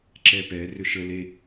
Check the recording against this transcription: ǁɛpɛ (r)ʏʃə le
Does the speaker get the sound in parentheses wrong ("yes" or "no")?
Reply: no